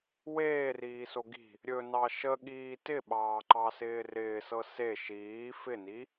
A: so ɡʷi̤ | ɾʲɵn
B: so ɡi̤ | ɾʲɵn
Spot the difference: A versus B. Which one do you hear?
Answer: B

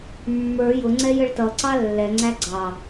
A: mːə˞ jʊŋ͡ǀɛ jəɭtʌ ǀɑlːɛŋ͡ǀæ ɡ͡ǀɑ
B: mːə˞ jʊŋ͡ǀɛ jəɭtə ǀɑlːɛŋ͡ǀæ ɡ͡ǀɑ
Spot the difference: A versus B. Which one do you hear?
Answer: A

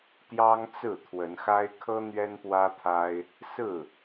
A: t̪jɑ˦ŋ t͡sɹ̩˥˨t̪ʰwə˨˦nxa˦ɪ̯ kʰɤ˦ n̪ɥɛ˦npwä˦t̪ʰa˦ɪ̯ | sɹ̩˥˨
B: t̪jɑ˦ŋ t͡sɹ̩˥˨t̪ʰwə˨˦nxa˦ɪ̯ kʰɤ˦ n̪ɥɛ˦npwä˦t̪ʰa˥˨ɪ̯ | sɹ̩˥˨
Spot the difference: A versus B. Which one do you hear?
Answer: A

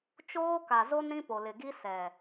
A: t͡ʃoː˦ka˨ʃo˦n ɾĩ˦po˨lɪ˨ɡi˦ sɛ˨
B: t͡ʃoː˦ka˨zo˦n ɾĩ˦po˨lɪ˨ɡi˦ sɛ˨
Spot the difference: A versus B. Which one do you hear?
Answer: B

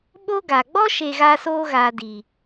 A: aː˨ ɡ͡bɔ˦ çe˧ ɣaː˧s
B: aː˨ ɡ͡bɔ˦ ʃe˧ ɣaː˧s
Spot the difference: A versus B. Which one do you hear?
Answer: B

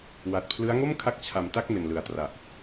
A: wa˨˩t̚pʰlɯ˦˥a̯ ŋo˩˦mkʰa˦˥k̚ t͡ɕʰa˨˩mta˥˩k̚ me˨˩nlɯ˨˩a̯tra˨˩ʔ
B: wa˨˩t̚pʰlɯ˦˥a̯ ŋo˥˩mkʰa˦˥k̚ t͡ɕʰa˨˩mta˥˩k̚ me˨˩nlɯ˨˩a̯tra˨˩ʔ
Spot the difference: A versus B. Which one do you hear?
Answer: B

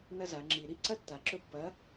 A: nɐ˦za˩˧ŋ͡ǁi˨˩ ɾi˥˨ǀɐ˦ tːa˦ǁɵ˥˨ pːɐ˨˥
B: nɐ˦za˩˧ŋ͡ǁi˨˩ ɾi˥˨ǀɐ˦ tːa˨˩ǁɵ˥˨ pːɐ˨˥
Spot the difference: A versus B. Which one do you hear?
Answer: B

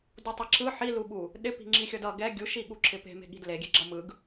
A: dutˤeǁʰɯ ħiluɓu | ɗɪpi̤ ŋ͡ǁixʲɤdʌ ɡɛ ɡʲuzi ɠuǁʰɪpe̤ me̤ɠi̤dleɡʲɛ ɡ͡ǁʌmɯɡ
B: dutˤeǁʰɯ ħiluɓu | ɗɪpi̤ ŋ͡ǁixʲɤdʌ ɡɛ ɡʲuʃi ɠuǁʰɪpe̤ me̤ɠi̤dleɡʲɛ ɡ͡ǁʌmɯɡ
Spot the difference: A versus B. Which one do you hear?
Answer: B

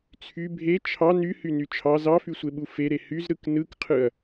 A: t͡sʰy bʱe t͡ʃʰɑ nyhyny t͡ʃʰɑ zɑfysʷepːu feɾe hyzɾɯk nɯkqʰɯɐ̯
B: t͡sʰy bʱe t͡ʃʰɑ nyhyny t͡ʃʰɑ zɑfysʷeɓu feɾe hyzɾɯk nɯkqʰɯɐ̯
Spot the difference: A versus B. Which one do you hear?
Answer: B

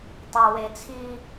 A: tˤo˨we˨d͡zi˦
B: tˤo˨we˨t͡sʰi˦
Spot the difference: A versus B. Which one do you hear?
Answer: B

